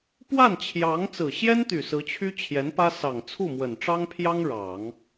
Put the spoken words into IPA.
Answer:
pwa˥˩nt͡ɕʰjɑ˧˥ŋ t͡sɹ̩˨˩ɕjɛ˥nt̪y˨˩ sɹ̩˧˥t͡ɕʰy˥ t͡ɕʰjɛ˧˥npä˥ sɑ˨˩ŋ t͡sʰu˥˩mwə˨˩nʈ͡ʂɑ˥ŋpʰjɑ˥ŋ ɻɑ˨˩˦ŋ

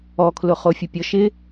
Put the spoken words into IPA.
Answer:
ɔkʰlʊχo fʲʊpʲɔʃɪ

